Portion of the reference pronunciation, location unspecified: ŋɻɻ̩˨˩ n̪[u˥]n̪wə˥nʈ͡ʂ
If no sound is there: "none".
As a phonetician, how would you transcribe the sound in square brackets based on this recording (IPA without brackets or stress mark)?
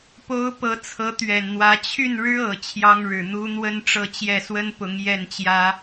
u˥